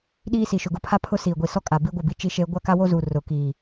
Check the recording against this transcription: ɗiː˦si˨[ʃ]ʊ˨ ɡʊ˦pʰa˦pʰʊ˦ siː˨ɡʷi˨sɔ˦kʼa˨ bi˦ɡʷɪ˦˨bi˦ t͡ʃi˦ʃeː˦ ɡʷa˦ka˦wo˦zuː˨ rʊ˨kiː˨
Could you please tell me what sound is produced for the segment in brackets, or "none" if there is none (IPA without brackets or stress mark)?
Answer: ʃ